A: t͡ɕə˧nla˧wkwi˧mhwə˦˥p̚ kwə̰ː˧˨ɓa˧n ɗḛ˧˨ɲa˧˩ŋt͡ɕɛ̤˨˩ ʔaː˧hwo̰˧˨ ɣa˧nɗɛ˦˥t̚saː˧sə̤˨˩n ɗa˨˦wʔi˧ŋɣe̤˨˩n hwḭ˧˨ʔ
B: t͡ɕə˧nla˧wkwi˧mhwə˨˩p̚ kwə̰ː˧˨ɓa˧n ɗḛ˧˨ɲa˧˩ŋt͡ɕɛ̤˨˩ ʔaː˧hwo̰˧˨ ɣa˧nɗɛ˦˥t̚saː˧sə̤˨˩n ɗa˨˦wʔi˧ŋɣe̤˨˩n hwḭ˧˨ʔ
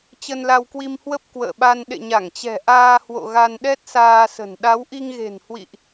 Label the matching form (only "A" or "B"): A